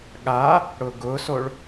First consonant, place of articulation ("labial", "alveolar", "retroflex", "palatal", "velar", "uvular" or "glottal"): velar